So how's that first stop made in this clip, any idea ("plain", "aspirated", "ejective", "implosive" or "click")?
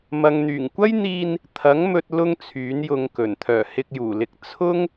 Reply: plain